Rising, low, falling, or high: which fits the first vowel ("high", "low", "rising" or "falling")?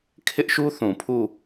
high